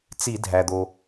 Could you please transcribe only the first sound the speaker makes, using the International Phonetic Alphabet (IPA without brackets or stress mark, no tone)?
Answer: t͡s